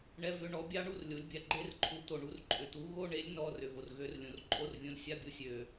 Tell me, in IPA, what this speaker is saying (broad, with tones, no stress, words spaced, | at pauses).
ɳɛ˧˥˧vʏ˧˥˧ ɳɔ˨˥bʲɑ˦˥ɳu˧˥˧r lʲo˨˥lʲbʲa˨ ɡ͡ǃe˦˥rǃʰu˨˥t̪o˨ɳu˨˥r ǃʼʏ˨t̪u˨˥ ɣo˧˥˧ɳe˨˥lʲ nɔ˧˥˧rʏ˨ vo˨rɣø˨˥rlʲõ˨r ǃʼo˦˥rvʲõ˧˥˧lʲ sʲa˧˥˧bʲo˨˥ sʲø˨